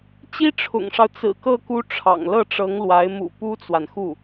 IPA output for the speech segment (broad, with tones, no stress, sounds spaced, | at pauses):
t͡ɕ i˥ ʈ͡ʂʰ ʊ̰˨˩ ŋ ʂ ɑ˦ ʊ̯ t͡s ɹ̩˨˩ k ɤ˥˩ k u˥ ʈ͡ʂʰ ɑ̰˨˩ ŋ l ɤ˥˩ ʈ͡ʂ ɤ˧˥ ŋ l w a˧˥ ɪ̯ m ṵ˨˩ p u˥ t͡s w a˨ n x u˥˩